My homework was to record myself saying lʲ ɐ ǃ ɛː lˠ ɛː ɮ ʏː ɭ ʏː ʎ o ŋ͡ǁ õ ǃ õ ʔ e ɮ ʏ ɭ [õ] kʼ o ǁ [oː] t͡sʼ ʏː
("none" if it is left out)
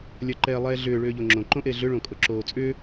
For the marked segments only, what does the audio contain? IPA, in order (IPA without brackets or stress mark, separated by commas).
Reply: õ, oː